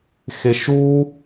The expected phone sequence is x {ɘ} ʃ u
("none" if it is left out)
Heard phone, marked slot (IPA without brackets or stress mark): e